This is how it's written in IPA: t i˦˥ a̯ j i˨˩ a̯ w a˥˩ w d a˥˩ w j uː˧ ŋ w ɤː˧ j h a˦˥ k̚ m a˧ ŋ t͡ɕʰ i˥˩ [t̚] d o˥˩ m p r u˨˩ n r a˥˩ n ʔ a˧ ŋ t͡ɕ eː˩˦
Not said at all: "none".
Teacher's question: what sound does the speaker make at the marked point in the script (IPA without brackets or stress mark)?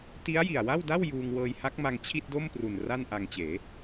t̚